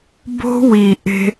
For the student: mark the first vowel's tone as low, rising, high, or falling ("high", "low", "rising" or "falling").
high